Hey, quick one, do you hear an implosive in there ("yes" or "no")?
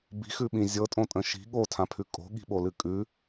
yes